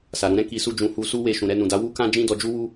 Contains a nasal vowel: yes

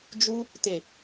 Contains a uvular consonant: no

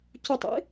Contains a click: no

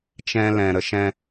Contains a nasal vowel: yes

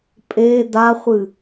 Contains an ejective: yes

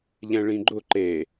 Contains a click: yes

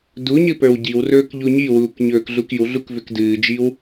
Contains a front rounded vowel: yes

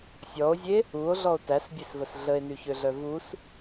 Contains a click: no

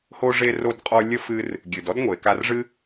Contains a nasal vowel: no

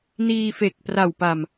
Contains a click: no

